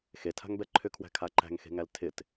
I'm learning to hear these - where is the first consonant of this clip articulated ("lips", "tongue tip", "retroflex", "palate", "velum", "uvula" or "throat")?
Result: velum